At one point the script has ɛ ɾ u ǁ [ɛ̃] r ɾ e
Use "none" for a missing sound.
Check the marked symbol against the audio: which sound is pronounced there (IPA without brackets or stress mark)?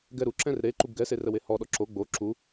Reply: ɛ̃